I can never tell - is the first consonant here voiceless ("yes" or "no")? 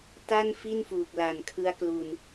yes